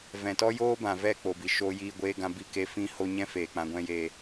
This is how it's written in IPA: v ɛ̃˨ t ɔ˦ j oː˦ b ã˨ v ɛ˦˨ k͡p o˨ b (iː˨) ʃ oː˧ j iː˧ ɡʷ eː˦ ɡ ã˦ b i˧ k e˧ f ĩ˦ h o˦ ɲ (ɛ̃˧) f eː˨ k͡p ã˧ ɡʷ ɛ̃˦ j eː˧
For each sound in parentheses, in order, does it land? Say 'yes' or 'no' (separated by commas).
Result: no, no